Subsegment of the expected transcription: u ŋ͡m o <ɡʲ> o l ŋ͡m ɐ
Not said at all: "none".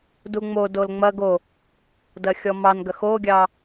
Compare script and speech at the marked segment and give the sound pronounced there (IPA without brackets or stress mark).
d